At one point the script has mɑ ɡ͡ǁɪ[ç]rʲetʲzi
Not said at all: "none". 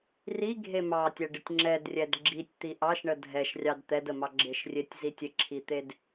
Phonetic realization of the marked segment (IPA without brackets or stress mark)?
ʃ